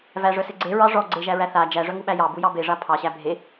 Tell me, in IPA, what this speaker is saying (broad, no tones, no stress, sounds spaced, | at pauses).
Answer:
v æ ʐ œ s e ɡ͡ǀ e ɹ ɑ ʐ ɔ ɡ͡ǀ e ʒ æ ɹ æ θ a d͡ʒ æ ʐ œ ŋ u ɓ æ j ɑ b u j ɑ b e ʐ a pʰ ɑ ɕ æ bʱ e